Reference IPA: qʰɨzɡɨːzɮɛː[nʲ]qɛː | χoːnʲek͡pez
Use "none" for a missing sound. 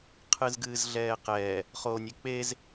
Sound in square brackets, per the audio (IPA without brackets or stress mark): none